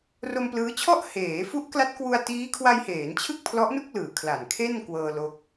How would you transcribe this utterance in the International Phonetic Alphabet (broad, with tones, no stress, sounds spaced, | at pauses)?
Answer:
r o˧ m p l ɯː˦˥ t͡ɕʰ ɔ˥˩ ʔ h eː˩˦ f u˦˥ ʔ k l a˦˥ t̚ k w u˧ a̯ t iː˦˥ kʰ w a˧ j h eː˩˦ n t͡ɕʰ ɯ˥˩ k̚ pʰ l ɔ˦˥ ʔ n u˥˩ k̚ l ɯː˩˦ kʰ l a˨˩ n kʰ e˥˩ n k w ɤː˧ l o˦˥ k̚